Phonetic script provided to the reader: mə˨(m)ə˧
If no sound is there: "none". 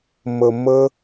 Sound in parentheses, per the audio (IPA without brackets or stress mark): m